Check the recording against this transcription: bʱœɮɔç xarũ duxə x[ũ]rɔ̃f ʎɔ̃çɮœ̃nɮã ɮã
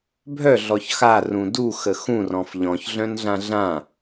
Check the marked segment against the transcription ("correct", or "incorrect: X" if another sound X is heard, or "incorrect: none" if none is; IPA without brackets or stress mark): correct